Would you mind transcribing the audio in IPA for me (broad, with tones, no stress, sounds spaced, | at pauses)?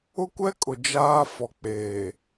ʊ˦ kʷ ɛ˦ kʼ ʊ˨ d͡ʒ aː˦ f ɔ˨ k͡p eː˨